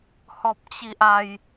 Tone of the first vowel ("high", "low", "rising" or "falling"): high